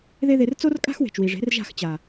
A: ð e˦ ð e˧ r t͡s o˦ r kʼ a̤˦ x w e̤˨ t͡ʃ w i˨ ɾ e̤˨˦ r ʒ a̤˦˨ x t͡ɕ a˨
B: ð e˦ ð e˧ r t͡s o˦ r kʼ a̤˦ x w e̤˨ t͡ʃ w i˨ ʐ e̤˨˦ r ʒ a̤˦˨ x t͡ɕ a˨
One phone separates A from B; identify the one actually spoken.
B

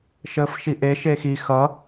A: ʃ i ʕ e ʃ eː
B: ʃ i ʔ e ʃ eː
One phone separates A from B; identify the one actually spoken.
B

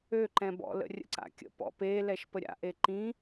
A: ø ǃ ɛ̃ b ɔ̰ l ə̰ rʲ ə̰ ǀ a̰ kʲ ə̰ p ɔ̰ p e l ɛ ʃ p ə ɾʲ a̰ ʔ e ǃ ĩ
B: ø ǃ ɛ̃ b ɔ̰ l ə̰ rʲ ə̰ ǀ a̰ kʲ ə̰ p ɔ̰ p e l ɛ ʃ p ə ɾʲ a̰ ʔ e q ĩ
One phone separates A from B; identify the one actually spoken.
A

